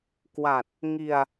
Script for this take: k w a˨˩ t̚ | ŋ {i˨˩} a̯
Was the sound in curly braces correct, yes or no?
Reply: no